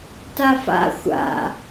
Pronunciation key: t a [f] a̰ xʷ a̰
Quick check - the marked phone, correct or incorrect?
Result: correct